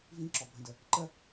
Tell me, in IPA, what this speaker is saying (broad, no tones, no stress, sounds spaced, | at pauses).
v ĩ ǁ ɔ bʱ ə̃ d ə | ǃ ə